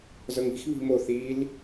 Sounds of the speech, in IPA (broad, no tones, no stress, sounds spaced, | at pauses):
z ɤ ŋ i̤ x β i̤ m o θ i l